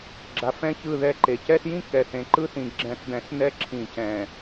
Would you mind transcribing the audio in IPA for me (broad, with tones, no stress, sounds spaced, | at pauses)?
ɡ͡ǁ a˨˦ f ɛ̃˦ ç ɯ˦˨ ð ɛ˦˨ ǃ e˨ c ɛ˦ s j ĩ˦ k ɛ˨ θ ẽ˨ ǃ ɯ˦ θ ĩ˨ ɡ͡ǁ ɛ̃˨ θ d̪ ɛ̃˨ s n ɛ˦ ǁʰ ĩ˨ c ɛ̃˨